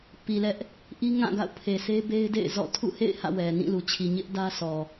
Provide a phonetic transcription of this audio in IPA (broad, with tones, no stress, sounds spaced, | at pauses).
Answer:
p i˨ l ɛ˦ ʔ | ʔ i˦ ŋ ã˦˨ ɡ a̰˦˨ ʊ̯ pʰ e˨ sʰ e˦ b e˦ ɪ̯ d ḛ˦˨ ɪ̯ z ɔ̰˦˨ tʰ ṵ˦˨ h ḛ˦˨ ɪ̯ h ä̰˦˨ w ɛ˨ n ĩ˦˨ l u˨ t͡ɕʰ i˨ ɲ ɪ˦ ʔ d ä˦ s ɔ˨